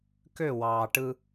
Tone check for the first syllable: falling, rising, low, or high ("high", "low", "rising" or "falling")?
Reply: falling